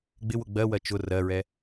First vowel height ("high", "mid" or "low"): high